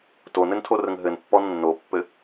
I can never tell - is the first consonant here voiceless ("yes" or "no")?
yes